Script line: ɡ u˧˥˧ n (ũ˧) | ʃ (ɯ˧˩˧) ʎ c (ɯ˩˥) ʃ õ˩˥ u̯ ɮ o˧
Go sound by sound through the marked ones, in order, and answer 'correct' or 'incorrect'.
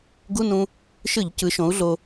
correct, correct, correct

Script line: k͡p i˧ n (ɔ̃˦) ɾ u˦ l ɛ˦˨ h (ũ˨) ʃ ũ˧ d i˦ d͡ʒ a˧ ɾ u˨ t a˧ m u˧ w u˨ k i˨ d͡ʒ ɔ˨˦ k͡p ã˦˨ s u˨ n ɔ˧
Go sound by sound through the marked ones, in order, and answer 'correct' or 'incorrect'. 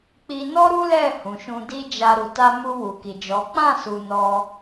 incorrect, correct

